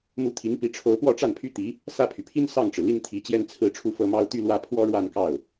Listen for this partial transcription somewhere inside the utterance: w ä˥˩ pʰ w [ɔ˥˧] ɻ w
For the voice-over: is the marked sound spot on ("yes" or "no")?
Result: no